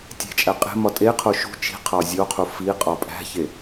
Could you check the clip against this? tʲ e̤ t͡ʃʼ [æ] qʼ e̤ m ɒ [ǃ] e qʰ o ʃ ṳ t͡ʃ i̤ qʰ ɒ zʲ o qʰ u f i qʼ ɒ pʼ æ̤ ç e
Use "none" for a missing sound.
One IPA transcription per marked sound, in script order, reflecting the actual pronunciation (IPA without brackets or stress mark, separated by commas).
æ, tʼ